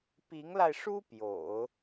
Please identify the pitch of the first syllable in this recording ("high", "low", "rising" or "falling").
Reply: rising